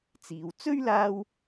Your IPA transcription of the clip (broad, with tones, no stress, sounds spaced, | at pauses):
t͡s iː˨ w t͡s ɵ˥ ɥ l aː˧ w